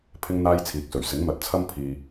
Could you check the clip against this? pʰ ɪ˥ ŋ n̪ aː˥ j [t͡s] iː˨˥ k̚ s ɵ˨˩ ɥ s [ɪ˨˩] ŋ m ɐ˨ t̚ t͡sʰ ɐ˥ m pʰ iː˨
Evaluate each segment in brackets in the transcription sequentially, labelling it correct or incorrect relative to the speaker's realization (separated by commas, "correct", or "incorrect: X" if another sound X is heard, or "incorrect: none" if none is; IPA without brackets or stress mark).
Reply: incorrect: t͡sʰ, incorrect: ɪ˨˥